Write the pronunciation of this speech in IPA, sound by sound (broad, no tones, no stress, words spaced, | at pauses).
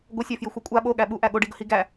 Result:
ɡʷəsʲæfjɪxʷə kʷʼa ɓoɠæ ɓuʔæ ɠoɖiɡəhi ɡæ